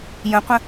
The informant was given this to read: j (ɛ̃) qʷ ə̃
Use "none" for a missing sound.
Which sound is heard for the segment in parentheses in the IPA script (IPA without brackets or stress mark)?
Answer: ə̃